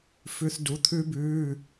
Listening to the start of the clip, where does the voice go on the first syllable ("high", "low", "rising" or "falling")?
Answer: high